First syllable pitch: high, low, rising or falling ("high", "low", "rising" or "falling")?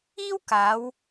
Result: high